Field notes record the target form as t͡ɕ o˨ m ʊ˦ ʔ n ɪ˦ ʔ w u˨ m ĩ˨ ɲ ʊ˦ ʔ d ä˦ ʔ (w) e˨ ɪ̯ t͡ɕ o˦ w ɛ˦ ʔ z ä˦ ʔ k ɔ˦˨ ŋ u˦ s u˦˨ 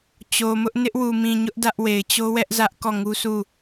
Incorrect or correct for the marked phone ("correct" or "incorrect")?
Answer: correct